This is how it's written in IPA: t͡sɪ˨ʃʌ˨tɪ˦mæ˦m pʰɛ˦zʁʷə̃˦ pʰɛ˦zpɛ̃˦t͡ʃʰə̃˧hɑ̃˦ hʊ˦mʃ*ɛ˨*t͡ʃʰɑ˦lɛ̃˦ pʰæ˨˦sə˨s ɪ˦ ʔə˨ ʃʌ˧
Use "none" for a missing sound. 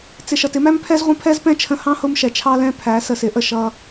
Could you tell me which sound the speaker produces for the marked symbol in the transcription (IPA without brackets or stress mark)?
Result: ɛ˨